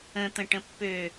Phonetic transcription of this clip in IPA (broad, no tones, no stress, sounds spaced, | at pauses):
ə̃ t̪ ə̃ ʈ ə̃ pː ø